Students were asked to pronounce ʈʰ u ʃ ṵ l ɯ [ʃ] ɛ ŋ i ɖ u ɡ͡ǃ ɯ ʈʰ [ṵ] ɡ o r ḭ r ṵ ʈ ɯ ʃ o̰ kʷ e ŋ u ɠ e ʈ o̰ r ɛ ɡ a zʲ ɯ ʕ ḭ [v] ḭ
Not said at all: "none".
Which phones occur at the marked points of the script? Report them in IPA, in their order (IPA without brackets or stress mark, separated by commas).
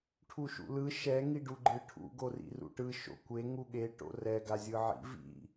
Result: ʃ, ṵ, v